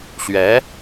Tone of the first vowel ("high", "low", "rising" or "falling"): rising